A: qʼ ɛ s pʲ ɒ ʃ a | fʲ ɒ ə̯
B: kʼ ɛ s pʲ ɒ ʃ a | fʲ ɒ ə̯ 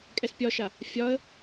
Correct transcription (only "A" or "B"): B